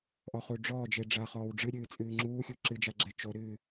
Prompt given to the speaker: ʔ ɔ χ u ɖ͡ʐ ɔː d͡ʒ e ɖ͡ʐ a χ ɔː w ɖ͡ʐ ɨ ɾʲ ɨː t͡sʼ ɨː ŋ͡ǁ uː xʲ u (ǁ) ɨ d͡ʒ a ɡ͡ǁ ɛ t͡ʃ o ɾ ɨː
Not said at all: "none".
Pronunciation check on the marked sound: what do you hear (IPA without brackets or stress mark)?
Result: ǁ